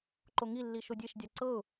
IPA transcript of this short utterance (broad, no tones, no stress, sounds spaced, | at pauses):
ǃ o ŋ i lː i ʃ o dʲ e ʃ dʲ a ǀ ɤ ʊ̯